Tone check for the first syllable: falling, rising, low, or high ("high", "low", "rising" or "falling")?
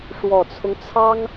low